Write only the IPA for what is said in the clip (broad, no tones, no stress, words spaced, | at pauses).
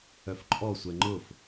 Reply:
œfǃʼɔsʷɛ ŋ͡ǃʊf